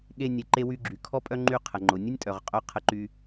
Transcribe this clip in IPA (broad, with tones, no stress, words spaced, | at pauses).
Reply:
ɠe˧ nʲe˩ǃe˧ wy˧ ɡ͡ǁy˩kʰɔ˥pʼœ˥ ŋ͡ǃy˧qʰə˩ ŋ͡ǃʊ˩nʲə˥nʲtʼœ˩ʁqʼœ˧ qʰə˧ǃy˧